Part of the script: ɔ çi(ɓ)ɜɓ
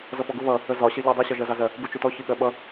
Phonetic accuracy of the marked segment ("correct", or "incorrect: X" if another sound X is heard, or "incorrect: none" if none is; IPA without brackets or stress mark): incorrect: ɠ